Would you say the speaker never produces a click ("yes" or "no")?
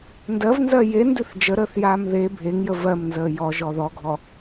yes